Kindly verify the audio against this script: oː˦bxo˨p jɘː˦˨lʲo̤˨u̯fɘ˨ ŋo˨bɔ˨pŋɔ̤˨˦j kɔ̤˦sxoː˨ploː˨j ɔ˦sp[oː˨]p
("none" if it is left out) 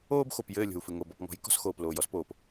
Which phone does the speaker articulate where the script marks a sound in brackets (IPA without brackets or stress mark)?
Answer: oː˨